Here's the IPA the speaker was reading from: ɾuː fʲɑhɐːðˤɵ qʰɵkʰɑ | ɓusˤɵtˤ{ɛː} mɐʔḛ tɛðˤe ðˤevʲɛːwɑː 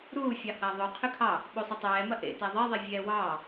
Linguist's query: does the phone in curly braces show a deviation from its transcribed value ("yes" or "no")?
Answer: no